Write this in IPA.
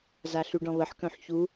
z a ɬ y ɖ ɔ̃ β ə ħ k œ̃ ħ ç u

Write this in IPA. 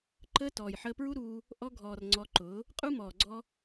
ǃ əː˧ t ɔː˨ j ħ əː˧ p ɹ u˦ ɾ uː˧ | ʔ ɔ˧ ɡʱ ɔː˨ r ŋ͡ǀ ɔ˧ ǃ ʊː˨˦ | qʼ u˦ m ɔː˨ ɡ͡ǀ ɔ˧

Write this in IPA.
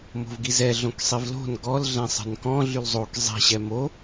m o̤ v ɡ i z ɛ ɮ õ k sˤ i v l o̤ n ɡ ɔ l ɮ ɛ̃ sˤ ɛ̤ n k ɔ̃ ɮ y l zˤ o k zˤ i̤ ɕ ɛ m o

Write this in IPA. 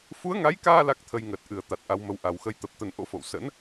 f u˨˦ ə̯ ŋ a˨˦ j k aː˧ l a˦˥ k̚ t̪ʰ ə˧ j ŋ əː˨˩ t̚ ʔ ɨ˨˩ ə̯ t̪ a˨˩ t̚ ʔ a˨˦ w m ə˨˦ w ʔ a˨˩ w x ə˧ j t̪ ə˨˩ p̚ t̪ ə˧ n ʔ o̰˧˥ f o̰˧˨ w s ə̰˧˥ n

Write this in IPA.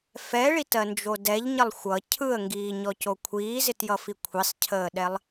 f ɛ ɭ i t ɜ n d͡ʒ o d ɛ ʎ ɲ ə lˠ xʷ ʌ cʰ ɯ ə̯ ŋ ɡ iː ɲ ɔ c o kʷʰ iː z ɪ t j ʌ f i kʷʰ i sˤ cʰ əː ɗ ɛ lˠ

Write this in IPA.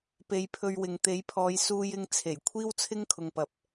p e˨ j pʰ ɵ˧ ɥ w ɪ˨ ŋ t̪ e˨˥ j pʰ ɔː˨˧ j s uː˧ j ɪ˧ ŋ t͡sʰ e˨˩ j kʷʰ iː˥ w t͡sʰ ɪ˥ ŋ kʰ ʊ˨ ŋ p ɐ˨˥ p̚

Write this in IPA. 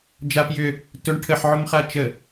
d͡ʒ a p j ʏ | t ʊ ɳ ʈʰ ə ħ ʕ ʊ m χ a t͡ʃ ə

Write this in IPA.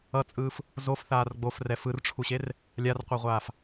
ʌ t͡sʼ ɯː f | z o f θ aː r ɡ͡b o f r ɛ f ɯ r ʈ͡ʂʰ u ɕ e r | lʲ a r qʷ ʌ ʁʷ aː f

